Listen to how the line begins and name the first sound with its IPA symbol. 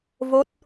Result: v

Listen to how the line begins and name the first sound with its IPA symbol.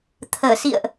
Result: t̪ʰ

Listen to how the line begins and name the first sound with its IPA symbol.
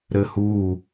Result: ɾ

